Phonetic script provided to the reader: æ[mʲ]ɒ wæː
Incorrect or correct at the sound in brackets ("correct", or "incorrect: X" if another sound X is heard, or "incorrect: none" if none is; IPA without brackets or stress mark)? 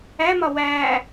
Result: incorrect: m